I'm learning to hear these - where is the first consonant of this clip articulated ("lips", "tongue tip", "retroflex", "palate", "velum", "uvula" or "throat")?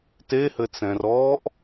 tongue tip